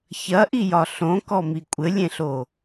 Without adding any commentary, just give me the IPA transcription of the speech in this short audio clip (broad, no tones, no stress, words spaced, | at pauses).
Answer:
çɐʔijɒ ɬõkɔmi kʷʼɘlʲẽɬo